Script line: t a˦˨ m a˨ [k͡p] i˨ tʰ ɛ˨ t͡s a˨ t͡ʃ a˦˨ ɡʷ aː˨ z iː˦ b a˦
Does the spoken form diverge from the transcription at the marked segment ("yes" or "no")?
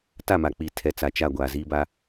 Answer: no